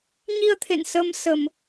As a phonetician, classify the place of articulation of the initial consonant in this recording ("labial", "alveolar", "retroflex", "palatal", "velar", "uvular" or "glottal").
palatal